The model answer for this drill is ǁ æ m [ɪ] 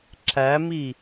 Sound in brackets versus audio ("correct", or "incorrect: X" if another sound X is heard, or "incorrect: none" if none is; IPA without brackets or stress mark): incorrect: i